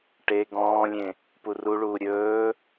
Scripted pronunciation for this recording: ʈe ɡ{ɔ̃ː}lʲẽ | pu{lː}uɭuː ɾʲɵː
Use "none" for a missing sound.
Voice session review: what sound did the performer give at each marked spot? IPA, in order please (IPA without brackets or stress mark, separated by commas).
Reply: ɔ̃ː, r